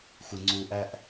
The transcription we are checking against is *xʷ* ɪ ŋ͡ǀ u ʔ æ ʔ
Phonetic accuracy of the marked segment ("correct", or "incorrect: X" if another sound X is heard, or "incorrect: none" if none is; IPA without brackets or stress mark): correct